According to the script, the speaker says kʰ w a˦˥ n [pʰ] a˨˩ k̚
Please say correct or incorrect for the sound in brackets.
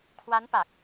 incorrect